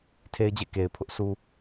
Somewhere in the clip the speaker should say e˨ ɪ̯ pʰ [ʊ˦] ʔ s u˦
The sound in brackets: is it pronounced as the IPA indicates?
yes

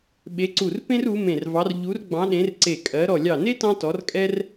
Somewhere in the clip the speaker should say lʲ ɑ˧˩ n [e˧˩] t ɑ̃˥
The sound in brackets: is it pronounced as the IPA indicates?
no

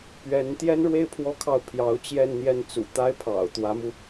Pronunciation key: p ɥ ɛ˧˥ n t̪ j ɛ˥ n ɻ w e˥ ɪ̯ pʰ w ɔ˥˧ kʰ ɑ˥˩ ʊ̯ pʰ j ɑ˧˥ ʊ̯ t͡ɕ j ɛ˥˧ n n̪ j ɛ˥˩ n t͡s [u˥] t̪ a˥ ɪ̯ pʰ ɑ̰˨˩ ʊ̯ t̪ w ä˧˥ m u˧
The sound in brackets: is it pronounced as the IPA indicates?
no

